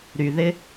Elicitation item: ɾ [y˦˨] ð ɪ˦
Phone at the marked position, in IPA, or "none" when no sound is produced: y˨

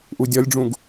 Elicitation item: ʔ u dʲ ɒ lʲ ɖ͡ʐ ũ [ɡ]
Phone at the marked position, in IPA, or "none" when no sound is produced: ɡ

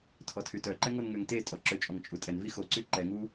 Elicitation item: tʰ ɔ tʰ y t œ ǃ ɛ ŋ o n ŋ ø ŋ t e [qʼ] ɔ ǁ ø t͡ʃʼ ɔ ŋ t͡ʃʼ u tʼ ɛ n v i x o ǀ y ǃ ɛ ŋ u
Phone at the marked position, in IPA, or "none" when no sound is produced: tʼ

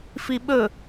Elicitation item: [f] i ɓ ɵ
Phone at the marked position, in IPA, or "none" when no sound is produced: f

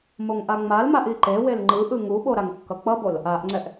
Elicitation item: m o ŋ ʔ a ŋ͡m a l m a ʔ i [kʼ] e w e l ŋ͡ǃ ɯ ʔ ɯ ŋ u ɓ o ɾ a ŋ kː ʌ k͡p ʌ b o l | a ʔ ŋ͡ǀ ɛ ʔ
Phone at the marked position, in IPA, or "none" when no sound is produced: ǃ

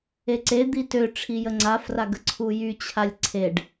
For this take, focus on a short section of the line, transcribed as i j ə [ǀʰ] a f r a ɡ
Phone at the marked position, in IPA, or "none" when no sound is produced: ŋ͡ǀ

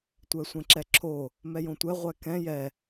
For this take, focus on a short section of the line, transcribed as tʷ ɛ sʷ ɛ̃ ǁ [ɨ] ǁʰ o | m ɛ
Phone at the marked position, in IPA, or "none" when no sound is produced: ɛ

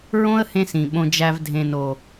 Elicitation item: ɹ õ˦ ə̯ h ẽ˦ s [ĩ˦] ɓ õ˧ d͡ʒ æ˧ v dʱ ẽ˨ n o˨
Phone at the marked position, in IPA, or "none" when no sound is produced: ĩ˨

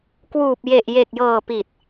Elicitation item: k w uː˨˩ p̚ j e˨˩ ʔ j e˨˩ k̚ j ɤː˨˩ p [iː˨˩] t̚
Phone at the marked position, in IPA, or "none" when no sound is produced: i˨˩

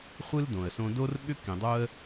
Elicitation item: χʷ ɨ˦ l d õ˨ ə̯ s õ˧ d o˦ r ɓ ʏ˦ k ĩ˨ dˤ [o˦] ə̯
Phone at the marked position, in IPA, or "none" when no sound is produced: o˦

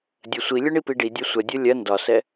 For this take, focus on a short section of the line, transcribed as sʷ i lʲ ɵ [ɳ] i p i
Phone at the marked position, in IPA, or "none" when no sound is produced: ɳ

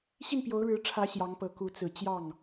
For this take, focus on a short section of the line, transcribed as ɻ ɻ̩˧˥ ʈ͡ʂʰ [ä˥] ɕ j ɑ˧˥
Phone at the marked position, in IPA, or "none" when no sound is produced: ä˧˥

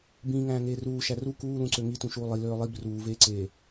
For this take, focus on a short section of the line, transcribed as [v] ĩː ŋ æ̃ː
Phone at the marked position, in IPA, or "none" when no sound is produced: b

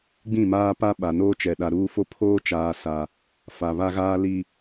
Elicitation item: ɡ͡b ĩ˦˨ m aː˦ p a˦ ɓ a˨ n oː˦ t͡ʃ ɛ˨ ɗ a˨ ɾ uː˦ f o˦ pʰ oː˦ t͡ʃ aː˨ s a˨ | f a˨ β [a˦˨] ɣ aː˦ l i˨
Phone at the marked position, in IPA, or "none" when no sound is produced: a˦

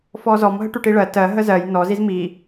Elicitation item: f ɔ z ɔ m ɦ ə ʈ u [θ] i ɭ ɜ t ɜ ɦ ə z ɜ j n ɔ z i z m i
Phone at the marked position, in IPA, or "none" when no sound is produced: ʈ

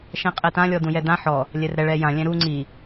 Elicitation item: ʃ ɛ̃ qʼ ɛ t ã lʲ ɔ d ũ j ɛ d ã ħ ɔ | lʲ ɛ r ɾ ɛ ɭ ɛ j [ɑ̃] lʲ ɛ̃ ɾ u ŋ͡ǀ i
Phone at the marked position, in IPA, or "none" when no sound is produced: ã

